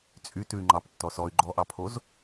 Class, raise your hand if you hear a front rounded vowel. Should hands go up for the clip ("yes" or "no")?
yes